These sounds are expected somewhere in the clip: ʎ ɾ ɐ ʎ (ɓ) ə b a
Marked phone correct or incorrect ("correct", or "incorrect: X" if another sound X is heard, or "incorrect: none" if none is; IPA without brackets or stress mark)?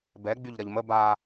incorrect: m